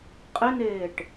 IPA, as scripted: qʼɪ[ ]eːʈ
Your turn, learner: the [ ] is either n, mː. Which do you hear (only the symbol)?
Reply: n